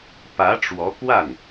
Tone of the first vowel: rising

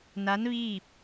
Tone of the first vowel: rising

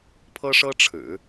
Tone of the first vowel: high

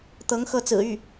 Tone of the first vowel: rising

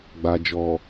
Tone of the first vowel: low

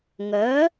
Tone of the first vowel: rising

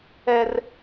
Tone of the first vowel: high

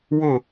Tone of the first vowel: falling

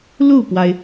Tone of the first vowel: falling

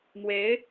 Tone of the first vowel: rising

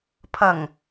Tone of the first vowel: low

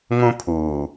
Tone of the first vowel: high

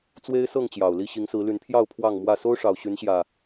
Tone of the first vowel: high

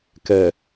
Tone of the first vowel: low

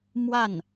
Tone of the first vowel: falling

